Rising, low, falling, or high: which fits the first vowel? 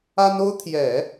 high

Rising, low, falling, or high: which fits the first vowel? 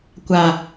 low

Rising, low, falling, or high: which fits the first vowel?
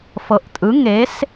rising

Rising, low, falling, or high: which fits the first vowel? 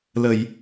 low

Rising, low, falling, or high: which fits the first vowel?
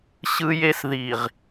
high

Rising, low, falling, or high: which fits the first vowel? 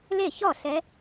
falling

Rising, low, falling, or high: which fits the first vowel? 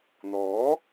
rising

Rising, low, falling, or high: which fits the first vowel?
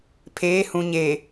rising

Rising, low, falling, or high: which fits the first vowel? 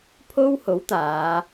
high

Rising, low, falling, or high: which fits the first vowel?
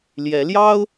rising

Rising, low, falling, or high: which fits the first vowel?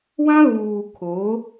high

